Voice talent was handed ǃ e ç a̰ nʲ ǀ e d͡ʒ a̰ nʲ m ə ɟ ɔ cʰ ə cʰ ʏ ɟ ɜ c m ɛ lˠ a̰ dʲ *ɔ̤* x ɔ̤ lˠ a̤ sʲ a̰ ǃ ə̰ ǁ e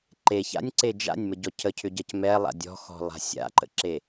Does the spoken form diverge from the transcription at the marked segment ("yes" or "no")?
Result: no